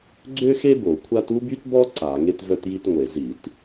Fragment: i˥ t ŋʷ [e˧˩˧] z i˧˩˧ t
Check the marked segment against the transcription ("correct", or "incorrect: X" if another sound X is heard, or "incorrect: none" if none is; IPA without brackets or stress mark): correct